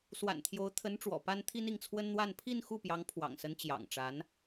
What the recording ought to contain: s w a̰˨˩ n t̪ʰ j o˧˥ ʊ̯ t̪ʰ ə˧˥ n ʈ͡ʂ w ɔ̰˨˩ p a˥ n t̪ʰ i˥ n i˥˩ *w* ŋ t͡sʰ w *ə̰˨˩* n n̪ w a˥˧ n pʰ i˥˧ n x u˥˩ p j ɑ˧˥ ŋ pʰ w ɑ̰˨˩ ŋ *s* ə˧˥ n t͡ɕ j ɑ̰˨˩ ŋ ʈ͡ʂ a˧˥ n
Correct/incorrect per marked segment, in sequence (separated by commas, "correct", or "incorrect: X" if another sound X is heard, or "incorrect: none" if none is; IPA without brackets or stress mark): incorrect: none, incorrect: ə˥, correct